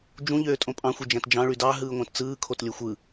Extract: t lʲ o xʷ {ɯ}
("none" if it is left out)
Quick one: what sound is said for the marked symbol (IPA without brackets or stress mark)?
ɯ